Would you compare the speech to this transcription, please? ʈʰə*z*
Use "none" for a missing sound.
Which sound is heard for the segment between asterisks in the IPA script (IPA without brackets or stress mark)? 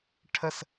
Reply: s